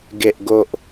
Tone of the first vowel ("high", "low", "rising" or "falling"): low